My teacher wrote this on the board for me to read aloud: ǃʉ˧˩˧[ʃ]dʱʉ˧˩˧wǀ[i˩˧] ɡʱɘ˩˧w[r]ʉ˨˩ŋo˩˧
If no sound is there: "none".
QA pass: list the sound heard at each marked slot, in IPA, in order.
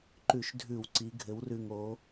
ʃ, i˩˧, r

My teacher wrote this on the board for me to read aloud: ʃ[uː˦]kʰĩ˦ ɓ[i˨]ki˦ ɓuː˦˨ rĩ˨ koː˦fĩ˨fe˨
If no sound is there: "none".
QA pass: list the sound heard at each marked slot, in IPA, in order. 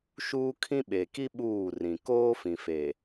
uː˦, e˨

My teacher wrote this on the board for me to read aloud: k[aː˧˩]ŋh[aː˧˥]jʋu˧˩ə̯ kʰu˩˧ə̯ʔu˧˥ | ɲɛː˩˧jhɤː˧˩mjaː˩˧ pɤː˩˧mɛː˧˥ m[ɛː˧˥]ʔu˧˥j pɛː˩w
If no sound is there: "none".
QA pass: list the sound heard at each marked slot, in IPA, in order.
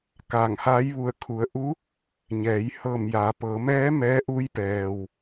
aː˧˩, aː˧˥, ɛː˧˥

